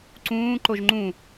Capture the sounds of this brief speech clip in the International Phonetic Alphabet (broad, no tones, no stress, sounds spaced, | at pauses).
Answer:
ǀ ũː ǃ o ʒ ŋ͡ǃ ũ